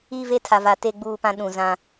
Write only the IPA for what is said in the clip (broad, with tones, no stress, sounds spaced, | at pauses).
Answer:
i˦˨ v e˦ tʰ a˨ v a˨ t e˦ ɡ͡b uː˦˨ p ã˦ ɗ ũ˨ z ã˦